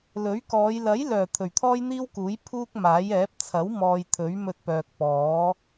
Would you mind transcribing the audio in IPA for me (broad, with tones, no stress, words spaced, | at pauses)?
lɵ˨˥ɥkɔː˨˧j lɐ˨˥jlœː˨˩ t̪ʰɵ˨˩ɥt̪ʰɔː˥jn̪iː˥wkuː˨˥j pʰuː˥k̚maː˨˥jɛː˨˥p̚ t͡sʰɐ˨˥wmɔː˨j t̪ʰɵ˨˥ɥmɵ˧t̚pœː˨k̚pɔː˨˥